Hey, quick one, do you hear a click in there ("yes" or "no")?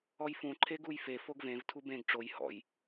yes